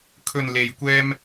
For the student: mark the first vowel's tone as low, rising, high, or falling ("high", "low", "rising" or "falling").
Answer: low